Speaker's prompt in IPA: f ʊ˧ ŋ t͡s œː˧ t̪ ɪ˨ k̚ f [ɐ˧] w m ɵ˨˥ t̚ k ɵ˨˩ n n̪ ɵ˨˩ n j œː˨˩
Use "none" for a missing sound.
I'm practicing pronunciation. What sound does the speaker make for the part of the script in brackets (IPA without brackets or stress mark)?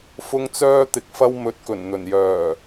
ɐ˧